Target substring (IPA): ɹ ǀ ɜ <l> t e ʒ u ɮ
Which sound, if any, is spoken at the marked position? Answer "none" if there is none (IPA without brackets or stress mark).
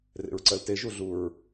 l